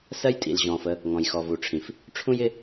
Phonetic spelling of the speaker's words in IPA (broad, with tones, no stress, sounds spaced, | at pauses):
s ɜ˦ j tʼ ḭ˨ l ʑ ɔ̃ː˨ f ə˦ | ŋ ɔ̃˨ j x ɔ˨ v u˨ ʈ͡ʂʰ ĩ˨ f | ʈ͡ʂʰ ũ˦ j ɪ˦